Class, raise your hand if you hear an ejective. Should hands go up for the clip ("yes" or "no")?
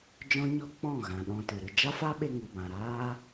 no